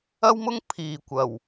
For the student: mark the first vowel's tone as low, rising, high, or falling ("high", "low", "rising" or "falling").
high